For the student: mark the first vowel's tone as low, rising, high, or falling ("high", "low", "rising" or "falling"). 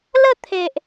falling